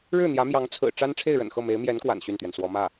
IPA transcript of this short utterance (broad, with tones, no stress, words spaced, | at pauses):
ɻɻ̩˥˩n̪jä˧˥mjɑ˧˥ŋ t͡sʰɹ̩˨˩ ʈ͡ʂa˥n ʈ͡ʂʰe˥˩ɪ̯ɻə̰˨˩nxɤ˥˩ me˧˥ɪ̯mjɛ˧˥nkwa̰˨˩n ɕy˥˩nt̪ɥɛ˩nswɔ˧˥ mä˥˩